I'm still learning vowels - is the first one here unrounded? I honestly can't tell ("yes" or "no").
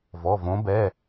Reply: no